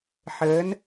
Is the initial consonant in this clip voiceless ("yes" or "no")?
yes